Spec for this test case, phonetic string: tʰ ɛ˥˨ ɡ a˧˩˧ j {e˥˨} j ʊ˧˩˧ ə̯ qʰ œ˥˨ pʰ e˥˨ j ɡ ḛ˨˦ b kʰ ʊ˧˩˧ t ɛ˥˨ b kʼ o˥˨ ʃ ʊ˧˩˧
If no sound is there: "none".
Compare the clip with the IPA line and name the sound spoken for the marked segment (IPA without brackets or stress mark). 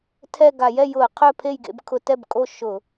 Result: ɛ˥˨